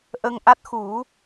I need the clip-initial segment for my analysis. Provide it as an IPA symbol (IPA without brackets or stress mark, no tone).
ʔ